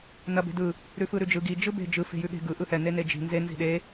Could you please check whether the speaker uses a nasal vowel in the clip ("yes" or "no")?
no